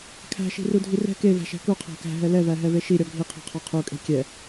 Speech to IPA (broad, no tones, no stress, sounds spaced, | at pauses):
kʰ æ̤ ʃ i̤ r u dʱ i r ɛ̤ k e v æ̤ ʃ æ̤ k u qʰ æ̤ k æ̤ ɦ ɛ l ɛ v æ ɦ ɛ v e ʃ i ɾʲ ɔ ɡʱ i qʰ e̤ qʰ ɔ qʰ u kʼ e̤ kʲ ɛ